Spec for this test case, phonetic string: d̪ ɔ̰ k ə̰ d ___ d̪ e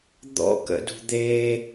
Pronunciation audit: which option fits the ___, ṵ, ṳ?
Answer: ṳ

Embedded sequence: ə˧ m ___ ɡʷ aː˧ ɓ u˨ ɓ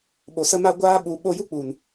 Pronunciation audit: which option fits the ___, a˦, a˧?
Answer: a˧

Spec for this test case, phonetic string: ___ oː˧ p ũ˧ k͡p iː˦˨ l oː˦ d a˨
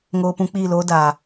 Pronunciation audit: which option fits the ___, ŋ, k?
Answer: ŋ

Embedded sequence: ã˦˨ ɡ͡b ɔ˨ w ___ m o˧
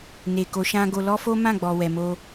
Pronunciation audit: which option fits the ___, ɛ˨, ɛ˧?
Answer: ɛ˨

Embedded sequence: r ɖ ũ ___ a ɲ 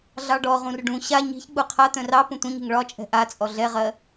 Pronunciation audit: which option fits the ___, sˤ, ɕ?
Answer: ɕ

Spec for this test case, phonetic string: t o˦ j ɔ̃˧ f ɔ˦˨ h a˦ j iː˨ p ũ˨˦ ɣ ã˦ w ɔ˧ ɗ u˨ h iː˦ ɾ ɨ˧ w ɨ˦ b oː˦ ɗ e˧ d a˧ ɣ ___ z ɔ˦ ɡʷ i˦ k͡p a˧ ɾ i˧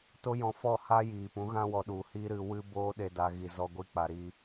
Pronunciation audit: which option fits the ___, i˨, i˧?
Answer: i˧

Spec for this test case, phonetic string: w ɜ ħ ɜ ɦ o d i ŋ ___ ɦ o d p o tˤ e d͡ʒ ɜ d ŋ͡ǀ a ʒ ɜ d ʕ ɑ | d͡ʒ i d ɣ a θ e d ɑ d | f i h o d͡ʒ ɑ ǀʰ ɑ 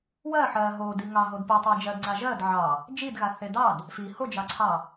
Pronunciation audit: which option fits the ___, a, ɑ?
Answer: ɑ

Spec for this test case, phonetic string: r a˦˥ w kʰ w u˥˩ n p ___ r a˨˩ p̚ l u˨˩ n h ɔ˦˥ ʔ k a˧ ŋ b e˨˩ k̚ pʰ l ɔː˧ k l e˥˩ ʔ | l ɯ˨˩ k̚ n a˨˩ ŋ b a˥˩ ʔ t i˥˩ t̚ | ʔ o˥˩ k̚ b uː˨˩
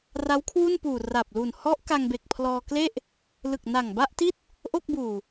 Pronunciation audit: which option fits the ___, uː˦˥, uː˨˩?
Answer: uː˨˩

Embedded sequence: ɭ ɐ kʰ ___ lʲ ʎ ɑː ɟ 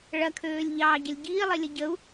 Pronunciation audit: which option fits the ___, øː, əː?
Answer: øː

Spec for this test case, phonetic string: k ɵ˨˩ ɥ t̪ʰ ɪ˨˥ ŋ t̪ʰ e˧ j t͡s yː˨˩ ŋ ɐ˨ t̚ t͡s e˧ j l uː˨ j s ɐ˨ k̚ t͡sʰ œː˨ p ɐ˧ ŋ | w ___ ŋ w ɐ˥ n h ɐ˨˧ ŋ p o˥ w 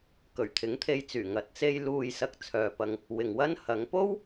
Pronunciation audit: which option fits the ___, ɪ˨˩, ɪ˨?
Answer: ɪ˨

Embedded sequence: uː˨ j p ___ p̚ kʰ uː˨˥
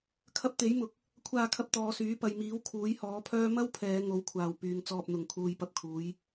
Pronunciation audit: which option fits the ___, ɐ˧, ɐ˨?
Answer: ɐ˧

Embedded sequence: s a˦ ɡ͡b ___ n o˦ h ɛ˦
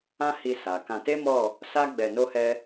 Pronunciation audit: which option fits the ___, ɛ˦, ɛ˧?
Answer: ɛ˧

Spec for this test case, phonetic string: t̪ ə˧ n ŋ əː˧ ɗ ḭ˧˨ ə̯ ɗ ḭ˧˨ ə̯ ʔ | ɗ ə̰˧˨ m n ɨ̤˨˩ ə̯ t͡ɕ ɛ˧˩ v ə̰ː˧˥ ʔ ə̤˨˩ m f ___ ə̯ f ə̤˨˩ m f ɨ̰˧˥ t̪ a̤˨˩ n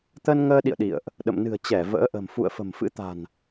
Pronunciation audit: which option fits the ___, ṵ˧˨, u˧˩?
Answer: ṵ˧˨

